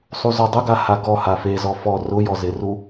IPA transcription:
sˤ u z ɔ dˤ ʊ ɡ a h a ɡ ɔ h a f e z ɔ f ɔ r ʊ j ɔ z ɪ r u

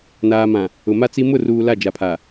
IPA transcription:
n aː˨ m ã˨ | ʊ˨ m a˦ t͡s i˦ m ʊ˦˨ r uː˨ l a˦˨ d͡ʒ a˨ pʰ a˨

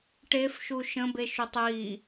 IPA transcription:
ʈ e f ʃ u ʃ ə̃ b e ʃ u tˤ j i

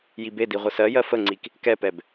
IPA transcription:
j i b e d i ʁʷ ə s ɜ j ɜ f ə ŋ͡ǀ i k | k ɛ p ɛ b

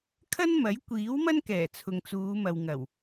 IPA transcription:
kʰ ɐ˥ n m ɐ˨˥ j kʷ iː˨˥ w m ɐ˥ n k ɛː˨˩ t͡sʰ ʊ˨ ŋ t͡s uː˨˧ m ɐ˨ w ŋ ɐ˨˩ w

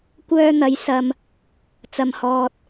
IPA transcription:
kʷ œː˧ n̪ ɐ˨˧ j s ɐ˧ m | t͡s ɐ˧ m h ɔː˧ t̚

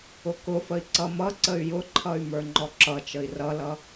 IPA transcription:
ʊ k ʊ f ə i̯ ǀ ʌ m ʌ ǀ ə y̯ j ʊ ǃʰ ʌ y̯ m ə˞ ŋ͡ǃ ɔ ǁ ʌ t͡ʃ ə i̯ r ʌ l ʌ

